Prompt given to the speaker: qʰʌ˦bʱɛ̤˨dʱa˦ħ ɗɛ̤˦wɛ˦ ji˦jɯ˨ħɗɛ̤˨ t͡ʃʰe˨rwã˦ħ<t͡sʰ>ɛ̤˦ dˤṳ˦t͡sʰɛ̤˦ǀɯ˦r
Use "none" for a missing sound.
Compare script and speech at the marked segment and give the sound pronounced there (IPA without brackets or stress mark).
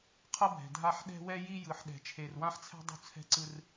t͡sʰ